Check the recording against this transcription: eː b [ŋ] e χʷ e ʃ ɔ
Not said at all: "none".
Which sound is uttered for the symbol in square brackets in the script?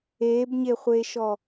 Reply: ɲ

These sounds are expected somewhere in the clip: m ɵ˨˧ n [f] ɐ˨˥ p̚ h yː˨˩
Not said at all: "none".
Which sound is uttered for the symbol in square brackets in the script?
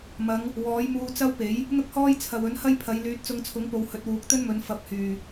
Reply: f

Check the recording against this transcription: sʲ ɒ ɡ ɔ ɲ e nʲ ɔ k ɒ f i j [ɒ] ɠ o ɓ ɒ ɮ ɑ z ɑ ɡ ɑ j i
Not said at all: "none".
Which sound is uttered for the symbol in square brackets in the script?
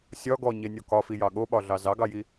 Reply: ɑ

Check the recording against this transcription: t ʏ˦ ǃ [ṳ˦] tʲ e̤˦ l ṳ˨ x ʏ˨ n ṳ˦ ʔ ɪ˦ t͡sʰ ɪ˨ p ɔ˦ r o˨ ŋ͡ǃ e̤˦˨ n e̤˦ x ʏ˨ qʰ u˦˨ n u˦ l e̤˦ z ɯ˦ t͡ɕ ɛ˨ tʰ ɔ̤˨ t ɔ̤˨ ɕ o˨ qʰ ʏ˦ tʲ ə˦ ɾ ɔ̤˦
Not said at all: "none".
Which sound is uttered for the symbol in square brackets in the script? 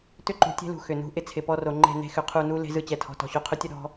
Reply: ṳ˨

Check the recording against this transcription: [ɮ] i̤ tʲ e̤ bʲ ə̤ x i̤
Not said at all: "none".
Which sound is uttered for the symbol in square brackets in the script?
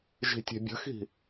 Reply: ʒ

